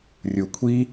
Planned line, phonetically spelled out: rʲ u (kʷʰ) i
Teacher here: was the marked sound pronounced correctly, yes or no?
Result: yes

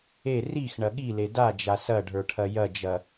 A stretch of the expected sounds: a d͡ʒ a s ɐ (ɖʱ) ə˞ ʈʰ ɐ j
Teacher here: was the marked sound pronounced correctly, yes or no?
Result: yes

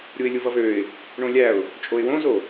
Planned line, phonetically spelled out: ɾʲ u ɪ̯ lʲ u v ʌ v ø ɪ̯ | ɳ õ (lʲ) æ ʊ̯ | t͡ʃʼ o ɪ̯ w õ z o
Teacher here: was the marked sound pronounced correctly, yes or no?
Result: yes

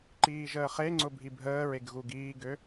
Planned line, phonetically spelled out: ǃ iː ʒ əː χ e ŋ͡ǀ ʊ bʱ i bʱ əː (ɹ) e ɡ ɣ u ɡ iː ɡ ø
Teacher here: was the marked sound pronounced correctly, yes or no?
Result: yes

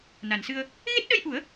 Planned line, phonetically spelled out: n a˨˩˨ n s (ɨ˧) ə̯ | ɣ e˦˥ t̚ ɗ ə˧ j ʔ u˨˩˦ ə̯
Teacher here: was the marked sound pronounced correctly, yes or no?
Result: yes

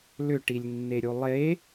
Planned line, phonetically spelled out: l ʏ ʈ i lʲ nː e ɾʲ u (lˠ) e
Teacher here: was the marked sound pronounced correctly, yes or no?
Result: yes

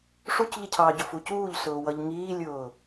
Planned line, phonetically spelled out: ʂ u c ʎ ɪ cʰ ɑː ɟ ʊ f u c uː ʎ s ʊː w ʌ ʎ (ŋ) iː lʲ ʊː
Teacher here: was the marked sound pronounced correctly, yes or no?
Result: yes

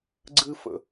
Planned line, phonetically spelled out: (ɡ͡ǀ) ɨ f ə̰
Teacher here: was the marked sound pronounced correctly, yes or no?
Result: yes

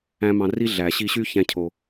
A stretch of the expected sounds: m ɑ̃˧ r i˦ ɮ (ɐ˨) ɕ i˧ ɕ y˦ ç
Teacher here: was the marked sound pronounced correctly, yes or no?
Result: no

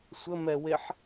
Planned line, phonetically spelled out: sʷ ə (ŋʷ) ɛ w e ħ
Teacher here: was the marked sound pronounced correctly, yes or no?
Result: no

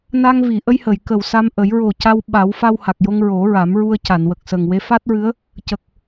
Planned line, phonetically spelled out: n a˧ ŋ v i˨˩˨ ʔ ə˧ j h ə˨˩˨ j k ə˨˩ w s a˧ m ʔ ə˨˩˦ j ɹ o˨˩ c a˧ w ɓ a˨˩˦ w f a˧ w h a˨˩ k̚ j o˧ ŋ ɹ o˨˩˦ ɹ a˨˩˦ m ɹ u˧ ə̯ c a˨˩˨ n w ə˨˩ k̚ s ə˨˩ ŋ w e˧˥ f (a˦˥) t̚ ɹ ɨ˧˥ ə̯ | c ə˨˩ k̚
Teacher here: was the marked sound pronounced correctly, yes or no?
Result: yes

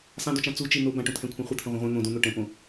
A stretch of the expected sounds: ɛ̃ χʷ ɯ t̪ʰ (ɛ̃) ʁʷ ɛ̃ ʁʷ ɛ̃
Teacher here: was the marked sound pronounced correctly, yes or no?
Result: yes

